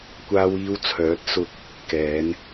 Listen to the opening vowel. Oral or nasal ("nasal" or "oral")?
oral